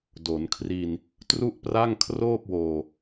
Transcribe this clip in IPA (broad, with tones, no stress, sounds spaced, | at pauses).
d o˩˦ n kʰ r i˧ n | t r u˥˩ ʔ p r a˥˩ ŋ kʰ r oː˥˩ p̚ w oː˨˩